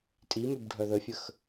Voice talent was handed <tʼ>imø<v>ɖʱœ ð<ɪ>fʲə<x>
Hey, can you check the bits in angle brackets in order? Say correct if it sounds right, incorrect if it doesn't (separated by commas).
correct, incorrect, incorrect, correct